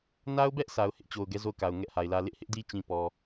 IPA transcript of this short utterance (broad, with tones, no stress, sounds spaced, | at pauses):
n a˦ ʊ̯ b ɛ˦ ʔ sʰ a˨ ʊ̯ h ɪ˦ ʔ t͡ɕ o˨ ʊ̯ ɡ ɛ˦ z o˦˨ ʊ̯ k a˨ ʊ̯ ŋ ɛ˦ ʔ h a˨ ɪ̯ l ä˦ l ɪ˦ ʔ h ɪ˦ ʔ d i˦ t͡ɕ ĩ˨ p ɔ˨